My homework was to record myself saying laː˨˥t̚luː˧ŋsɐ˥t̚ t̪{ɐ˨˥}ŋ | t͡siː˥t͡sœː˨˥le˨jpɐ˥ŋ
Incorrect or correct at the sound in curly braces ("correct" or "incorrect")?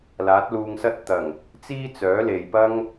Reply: incorrect